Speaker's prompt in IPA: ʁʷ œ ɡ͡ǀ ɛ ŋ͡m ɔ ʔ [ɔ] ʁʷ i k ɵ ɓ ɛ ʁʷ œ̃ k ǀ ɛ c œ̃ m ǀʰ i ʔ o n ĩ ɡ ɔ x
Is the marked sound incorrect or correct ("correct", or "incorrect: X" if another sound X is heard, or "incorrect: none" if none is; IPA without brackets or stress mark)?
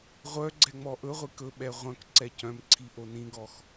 incorrect: ɵ